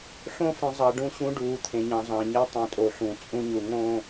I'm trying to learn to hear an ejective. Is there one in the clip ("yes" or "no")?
yes